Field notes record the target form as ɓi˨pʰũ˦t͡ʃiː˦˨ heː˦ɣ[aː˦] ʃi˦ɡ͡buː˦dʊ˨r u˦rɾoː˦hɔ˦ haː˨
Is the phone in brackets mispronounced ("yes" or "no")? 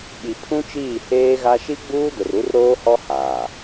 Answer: yes